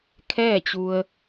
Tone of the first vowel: falling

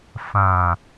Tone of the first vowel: low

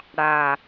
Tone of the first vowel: low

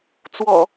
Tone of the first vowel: low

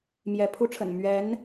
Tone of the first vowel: rising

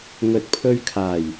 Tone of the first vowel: low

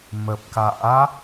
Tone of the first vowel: low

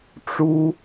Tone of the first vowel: high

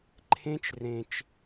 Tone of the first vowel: high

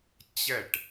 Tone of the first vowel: falling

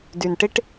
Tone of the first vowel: low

